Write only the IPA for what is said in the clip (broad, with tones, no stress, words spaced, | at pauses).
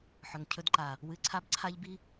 ħɵ˨ŋcʰɵ˧d ǃa˨ | wɨ˧ǀʰa˦bǀʰa˦ʎbi˦